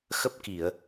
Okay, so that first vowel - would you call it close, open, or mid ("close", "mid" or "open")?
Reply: mid